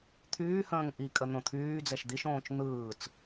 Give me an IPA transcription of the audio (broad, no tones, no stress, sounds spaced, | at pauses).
t̪ʰ yː h ə̃ː ŋ ʔ i kʼ ə n̪ õ t̪ʰ yː d͡z ɛ ʃ d̪ i ʃ õː t͡ʃ n̪ ɯː t͡s